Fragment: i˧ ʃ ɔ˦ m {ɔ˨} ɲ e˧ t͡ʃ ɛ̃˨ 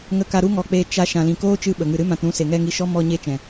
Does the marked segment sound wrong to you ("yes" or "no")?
yes